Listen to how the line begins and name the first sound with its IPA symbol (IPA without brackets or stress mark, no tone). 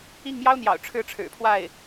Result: i